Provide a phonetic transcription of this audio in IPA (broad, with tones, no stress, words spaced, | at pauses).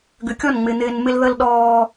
ɡʏ˨kʲɔ˦˨nŋ͡mɪ˨ n̪ɪː˨n mɪ˦lðə˦lɗɔː˦